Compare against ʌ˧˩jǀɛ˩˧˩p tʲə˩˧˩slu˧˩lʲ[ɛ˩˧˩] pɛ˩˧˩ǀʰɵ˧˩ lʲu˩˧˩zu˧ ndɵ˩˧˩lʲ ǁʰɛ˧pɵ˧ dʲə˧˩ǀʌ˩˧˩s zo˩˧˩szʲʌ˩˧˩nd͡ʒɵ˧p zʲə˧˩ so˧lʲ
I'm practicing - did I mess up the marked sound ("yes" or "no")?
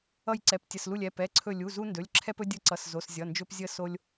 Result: no